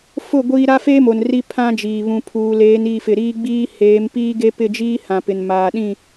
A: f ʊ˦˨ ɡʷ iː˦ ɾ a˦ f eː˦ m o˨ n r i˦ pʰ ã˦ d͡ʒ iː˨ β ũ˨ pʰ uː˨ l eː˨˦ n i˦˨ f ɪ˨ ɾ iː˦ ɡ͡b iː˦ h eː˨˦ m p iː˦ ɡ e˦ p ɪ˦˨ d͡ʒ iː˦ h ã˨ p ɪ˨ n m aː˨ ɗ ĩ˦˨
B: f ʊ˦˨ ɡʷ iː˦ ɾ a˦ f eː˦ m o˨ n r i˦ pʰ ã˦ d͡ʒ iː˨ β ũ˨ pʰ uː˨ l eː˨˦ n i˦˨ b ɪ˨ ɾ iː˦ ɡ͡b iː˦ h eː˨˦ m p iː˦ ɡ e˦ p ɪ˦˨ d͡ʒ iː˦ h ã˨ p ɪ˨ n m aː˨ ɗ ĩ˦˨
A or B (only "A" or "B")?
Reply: A